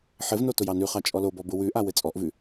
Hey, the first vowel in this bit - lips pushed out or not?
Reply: no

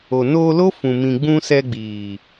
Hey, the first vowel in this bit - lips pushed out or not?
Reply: yes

